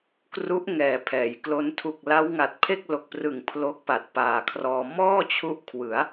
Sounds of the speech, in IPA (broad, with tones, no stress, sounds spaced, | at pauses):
k r u˦˥ ʔ ŋ ɛː˩˦ pʰ ɛː˩˦ j k l o˦˥ n tʰ u˨˩ k̚ l a˦˥ w ŋ a˨˩ t̚ pʰ e˥˩ k̚ l o˨˩ k̚ p r ɯ˨˩ ŋ pʰ l o˦˥ k̚ p a˨˩ t̚ p aː˨˩ kʰ r ɔː˧ m ɔː˥˩ t͡ɕʰ u˦˥ ʔ kʰ w ɯ˩˦ a̯